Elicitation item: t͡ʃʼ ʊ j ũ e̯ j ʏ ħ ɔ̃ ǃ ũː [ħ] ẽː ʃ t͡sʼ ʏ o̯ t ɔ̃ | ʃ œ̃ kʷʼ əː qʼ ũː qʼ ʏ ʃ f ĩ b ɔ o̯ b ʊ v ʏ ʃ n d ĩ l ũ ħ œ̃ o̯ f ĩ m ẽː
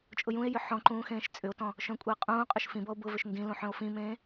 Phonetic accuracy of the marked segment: incorrect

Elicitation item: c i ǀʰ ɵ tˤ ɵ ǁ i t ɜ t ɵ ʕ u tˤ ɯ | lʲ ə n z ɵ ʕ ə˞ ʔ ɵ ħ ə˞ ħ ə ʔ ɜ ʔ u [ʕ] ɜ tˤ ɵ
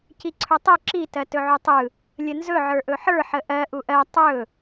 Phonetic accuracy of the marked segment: incorrect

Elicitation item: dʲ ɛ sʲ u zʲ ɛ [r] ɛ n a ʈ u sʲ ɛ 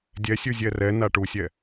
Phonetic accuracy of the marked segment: correct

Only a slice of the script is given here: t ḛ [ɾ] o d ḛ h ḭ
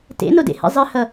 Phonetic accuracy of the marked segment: incorrect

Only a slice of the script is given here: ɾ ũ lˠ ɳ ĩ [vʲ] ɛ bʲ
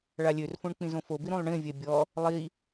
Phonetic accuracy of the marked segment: correct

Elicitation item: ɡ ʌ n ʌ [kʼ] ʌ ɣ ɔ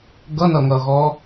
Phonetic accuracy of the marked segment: incorrect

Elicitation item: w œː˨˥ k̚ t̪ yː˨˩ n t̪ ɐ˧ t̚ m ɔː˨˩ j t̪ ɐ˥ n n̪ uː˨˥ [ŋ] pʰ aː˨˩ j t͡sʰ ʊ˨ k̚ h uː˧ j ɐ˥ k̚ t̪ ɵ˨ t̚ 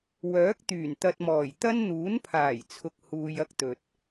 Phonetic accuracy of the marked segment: incorrect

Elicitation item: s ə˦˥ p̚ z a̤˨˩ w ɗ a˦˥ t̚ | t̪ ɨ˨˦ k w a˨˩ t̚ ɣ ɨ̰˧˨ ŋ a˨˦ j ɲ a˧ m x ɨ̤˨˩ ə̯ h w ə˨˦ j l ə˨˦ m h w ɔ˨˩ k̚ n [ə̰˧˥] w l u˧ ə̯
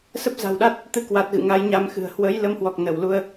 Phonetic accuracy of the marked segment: incorrect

